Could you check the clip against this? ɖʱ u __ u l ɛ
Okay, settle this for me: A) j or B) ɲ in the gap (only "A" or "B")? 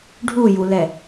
A